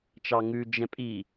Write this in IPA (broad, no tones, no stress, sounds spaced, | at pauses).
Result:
t͡ʃ ɑ ŋ ʉ d͡ʒ ɛ̃ pʼ i